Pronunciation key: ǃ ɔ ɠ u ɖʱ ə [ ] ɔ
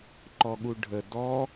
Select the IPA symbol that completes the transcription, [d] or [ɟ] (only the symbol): d